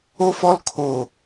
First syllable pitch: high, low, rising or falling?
high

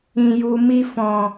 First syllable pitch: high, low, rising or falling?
low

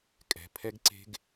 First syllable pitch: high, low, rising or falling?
low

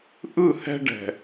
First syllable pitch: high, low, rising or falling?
falling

